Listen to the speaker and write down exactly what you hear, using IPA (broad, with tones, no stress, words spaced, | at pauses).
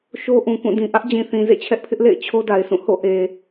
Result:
ʃo˦ʔũ˨kũ˦˨ dĩ˨ ʔä˦ʔd͡ʑĩ˨θĩ˨ zḛ˦˨t͡ɕʰɛ˦ʔpʰɪ˦ʔlḛ˦˨ɪ̯ t͡ɕʰo˦da˨ɪ̯sʰũ˦˨ ho̰˦˨ʔe˨